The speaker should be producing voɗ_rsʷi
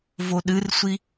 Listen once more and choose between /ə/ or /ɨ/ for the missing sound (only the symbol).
ɨ